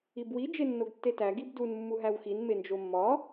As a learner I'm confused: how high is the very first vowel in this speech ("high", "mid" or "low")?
high